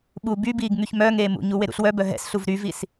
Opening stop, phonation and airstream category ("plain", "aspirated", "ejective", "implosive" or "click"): implosive